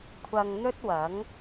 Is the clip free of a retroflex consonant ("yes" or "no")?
yes